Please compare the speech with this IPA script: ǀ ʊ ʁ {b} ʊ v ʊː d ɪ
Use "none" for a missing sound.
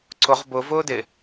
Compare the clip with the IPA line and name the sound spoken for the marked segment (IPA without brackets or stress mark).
b